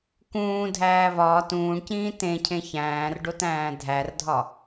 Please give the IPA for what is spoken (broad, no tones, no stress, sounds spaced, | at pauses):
k ũː dʱ æː β ɒː t ũː ɳ c ĩː t ẽ cʰ ẽ ç æ̃ː r ɖ o t æ̃ː dʱ æ r dʱ ɒ